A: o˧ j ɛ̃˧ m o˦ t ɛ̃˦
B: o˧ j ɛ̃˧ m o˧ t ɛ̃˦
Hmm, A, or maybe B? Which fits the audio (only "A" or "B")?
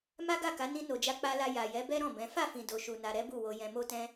A